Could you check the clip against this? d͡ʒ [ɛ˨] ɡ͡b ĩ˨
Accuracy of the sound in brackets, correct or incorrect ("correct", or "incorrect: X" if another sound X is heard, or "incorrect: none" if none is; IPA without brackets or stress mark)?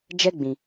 incorrect: ɛ˦